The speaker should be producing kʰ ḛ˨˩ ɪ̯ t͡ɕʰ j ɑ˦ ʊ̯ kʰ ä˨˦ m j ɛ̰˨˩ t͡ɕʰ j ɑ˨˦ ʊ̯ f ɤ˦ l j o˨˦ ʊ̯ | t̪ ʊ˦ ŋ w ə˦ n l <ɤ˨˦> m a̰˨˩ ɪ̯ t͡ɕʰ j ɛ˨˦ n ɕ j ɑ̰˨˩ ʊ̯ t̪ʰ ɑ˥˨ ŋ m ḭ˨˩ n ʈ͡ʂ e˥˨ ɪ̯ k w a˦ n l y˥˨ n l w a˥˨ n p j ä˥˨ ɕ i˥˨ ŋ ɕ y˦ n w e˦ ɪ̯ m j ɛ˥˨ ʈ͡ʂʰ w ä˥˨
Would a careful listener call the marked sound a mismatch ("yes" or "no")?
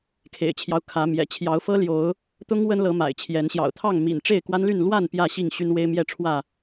no